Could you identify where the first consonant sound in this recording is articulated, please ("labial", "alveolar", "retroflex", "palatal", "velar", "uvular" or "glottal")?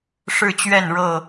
retroflex